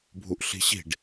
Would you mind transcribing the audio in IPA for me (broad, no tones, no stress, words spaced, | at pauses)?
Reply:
bʱuʔɬi̤ɕi̤ɖ